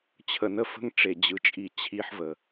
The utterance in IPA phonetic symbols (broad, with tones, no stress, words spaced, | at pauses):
t͡ɕʰə˨nə˦fə̤˦ŋ ʈ͡ʂe˨d͡ʑɯ˨t͡ʃʼi˨ t͡ɕʰi˦ħvə˨